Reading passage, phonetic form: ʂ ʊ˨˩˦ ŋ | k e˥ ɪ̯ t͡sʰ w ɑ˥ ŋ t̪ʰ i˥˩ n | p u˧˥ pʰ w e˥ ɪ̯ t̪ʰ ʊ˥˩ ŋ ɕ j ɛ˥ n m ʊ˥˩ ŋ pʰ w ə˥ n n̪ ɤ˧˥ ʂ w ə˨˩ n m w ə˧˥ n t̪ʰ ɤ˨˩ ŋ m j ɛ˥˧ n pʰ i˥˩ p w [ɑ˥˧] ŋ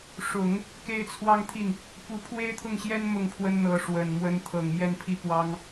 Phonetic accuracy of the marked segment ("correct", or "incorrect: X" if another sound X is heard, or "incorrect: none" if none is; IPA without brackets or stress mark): incorrect: ɑ˥